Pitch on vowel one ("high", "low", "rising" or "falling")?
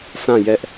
falling